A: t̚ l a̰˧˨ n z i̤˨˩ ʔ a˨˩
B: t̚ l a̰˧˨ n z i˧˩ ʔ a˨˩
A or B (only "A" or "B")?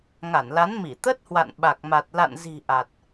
A